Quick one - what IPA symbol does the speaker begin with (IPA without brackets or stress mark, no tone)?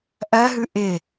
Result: ʔ